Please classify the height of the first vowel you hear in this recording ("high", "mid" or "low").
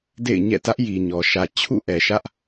mid